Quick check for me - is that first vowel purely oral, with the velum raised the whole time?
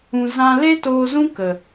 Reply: no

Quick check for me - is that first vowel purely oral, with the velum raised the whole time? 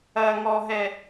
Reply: yes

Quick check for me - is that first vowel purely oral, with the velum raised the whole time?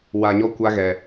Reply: yes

